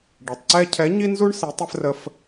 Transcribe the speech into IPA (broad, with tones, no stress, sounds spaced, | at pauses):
ɖ ɛ˩ tˤ ǀ ɛ˦ cʰ ɛ˨˥ ɲ i˦ n z u˦ ɳ s i˨˥ tˤ ɛ˦ f r ə˦ f